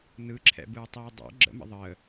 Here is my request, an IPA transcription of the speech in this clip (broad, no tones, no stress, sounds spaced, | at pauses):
n ɯ ǁʰ ɛ̰ b ɯː tˤ iː dˤ ɛ̰ ɡ͡ǁ ə̰ m ə̰ ðˤ əː